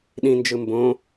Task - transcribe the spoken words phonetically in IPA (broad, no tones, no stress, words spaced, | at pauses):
ɗĩnd͡ʒɯ mbõ